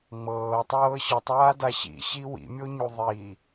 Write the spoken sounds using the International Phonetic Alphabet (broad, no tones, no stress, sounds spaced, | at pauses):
ŋ͡m ɤː tˤ ɤː ɕ ɯ tˤ aː d a ɕ ḭ ɕ i w ḭ mʲ o ɲ u ðˤ i